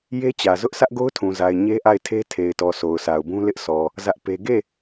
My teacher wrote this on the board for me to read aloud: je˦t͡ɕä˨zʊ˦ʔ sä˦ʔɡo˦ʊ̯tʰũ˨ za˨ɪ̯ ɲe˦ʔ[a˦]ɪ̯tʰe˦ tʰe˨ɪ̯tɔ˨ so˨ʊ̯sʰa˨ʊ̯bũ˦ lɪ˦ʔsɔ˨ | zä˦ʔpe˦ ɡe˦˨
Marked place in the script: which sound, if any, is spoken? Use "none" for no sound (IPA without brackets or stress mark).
a˦˨